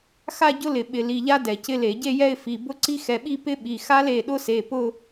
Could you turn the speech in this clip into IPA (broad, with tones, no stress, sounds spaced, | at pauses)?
x a˥˧ ɟ ʊ˦˥ l ɪ˧˩˧ ɓ ɪ˧˩˧ l i˩˧˩ ʎ a˦˥ d ɛ˧˩˧ c ɪ˦˥ l e˧˩˧ ɟ e˥˧ j ɛ˥˧ ɪ̯ f i˩˧˩ b ʊ˦˥ ǀ i˦˥ x ɛ˩˧˩ ɓ i˥˧ p ɪ˦˥ ɓ i˩˧˩ x a˦˥ l e˩˧˩ ɗ ʊ˦˥ s e˩˧˩ p ʊ˥˧